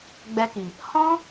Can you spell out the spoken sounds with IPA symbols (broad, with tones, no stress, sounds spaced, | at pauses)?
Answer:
ɡ͡b ɛ˧ k i˨ | h ɔ̃˦